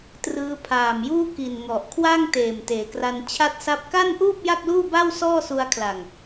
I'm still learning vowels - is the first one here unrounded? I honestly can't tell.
yes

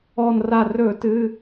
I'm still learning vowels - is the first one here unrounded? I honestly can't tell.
no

